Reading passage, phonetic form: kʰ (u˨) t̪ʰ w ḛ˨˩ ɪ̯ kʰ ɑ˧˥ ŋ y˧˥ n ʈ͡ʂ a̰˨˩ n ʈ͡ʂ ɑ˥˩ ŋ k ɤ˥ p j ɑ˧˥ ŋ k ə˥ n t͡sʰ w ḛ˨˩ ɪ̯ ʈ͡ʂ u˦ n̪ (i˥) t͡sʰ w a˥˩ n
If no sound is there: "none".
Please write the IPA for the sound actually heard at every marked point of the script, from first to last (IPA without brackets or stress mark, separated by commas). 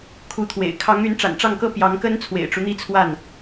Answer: u˧˥, i˥